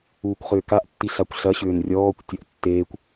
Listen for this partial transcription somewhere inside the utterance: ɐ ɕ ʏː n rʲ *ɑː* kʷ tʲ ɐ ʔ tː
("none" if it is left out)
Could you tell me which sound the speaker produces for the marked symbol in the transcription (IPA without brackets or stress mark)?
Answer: ɔː